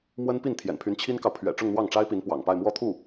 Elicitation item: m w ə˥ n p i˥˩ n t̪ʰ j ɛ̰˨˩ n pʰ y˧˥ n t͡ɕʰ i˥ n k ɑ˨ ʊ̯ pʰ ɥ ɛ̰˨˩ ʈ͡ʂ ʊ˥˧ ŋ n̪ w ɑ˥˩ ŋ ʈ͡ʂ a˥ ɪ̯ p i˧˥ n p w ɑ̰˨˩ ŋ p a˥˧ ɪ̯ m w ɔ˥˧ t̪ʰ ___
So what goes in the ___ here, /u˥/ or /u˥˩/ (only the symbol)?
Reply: u˥˩